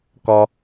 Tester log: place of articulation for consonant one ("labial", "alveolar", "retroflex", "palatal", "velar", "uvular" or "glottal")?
velar